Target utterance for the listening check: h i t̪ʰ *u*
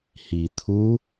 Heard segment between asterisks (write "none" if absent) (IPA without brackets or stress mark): u